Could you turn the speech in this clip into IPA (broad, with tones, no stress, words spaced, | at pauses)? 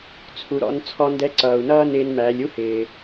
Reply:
t͡sʰu˩ɾɔ̰˩˧n t͡sʰɔ˧ndɛ˧˥ǀʌː˩u̯nʌː˥ nɪː˧nmæː˩˧lʲu˥hɪː˩